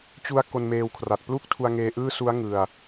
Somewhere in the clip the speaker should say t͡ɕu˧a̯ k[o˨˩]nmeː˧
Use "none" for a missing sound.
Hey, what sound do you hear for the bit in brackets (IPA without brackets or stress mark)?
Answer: o˧